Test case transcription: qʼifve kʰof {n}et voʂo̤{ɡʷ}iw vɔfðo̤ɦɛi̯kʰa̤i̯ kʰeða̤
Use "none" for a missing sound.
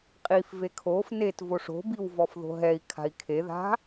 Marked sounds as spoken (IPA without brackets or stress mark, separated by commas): n, b